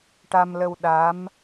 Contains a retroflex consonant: yes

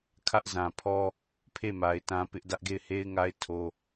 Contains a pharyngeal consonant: no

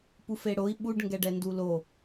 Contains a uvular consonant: no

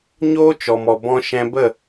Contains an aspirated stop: no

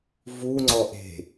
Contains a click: yes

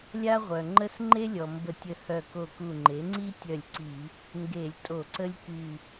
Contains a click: yes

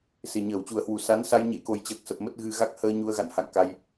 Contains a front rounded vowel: no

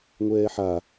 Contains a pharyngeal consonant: yes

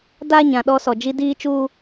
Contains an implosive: yes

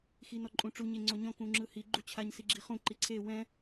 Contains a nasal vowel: yes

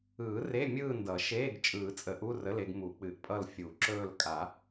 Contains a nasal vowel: no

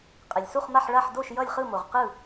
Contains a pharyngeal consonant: yes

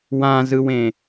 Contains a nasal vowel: yes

